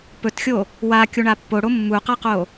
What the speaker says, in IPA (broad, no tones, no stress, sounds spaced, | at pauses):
p ɵ t xʲ o | w a kʲ u ɳ a pː o ɽ o mː u q a q o